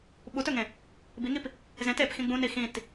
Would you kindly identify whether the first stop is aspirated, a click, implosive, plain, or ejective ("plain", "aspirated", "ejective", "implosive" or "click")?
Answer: implosive